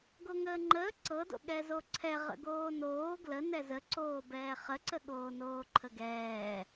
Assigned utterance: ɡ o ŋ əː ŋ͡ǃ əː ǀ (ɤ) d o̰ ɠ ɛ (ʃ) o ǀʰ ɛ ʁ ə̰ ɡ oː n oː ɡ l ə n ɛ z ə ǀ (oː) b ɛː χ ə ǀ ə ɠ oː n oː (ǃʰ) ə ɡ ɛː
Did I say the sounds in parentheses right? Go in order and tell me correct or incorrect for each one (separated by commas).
correct, incorrect, correct, correct